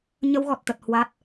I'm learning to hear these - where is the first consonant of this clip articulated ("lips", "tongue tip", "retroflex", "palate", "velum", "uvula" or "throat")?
palate